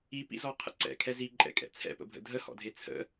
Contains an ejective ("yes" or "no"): yes